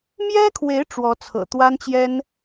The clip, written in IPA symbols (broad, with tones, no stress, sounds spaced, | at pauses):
m j ɛ˥ kʰ w e˧˥ ɪ̯ ʈ͡ʂ w ɔ˧˥ t͡sʰ ɤ̰˨˩ t̪ w a˥ n t͡ɕ j ɛ˥ n